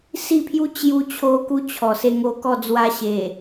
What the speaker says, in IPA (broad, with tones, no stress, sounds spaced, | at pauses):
s i˥˧ pʰ j u˦ t͡ɕ j u˧ t͡ɕʰ o˧ k u˦ t͡ɕʰ ɔ˨˩ s e˧ ŋ o˧ k ɔ˥˧ d͡z w a˦ ɕ e˨˩